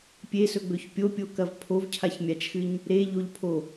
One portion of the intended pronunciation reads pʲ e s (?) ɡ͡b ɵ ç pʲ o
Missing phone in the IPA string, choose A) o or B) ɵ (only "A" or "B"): B